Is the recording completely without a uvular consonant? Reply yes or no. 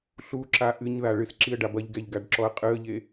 no